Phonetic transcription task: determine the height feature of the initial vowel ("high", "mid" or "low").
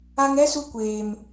low